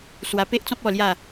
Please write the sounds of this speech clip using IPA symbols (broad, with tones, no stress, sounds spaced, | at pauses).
s w a˧ p e˦ ʔ t͡s ɔ̃˦ p̚ ɔ˥˧ l j a˥˧